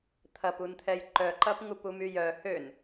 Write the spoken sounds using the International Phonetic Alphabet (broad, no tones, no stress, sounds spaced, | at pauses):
t̪ʰ ɐ p u n t̪ʰ ɛ j ǃ œ ǃ ɐ p ŋ u p u m y j œ h ø n